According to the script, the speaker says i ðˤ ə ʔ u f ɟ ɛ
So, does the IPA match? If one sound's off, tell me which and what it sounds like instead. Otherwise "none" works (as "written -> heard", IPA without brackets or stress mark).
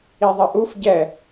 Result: none